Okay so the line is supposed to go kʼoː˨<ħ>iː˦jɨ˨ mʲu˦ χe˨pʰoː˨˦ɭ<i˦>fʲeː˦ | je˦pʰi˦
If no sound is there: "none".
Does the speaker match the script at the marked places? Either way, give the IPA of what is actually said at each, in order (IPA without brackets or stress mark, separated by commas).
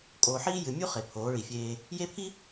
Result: ħ, i˨